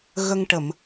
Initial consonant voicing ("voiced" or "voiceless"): voiced